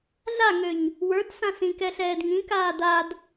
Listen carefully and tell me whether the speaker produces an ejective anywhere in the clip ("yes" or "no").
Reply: no